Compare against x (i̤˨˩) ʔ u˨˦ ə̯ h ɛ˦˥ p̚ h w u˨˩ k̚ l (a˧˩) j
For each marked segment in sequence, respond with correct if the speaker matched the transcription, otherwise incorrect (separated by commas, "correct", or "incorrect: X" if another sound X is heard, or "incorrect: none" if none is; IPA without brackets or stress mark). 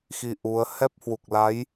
incorrect: i˧, incorrect: a˨˦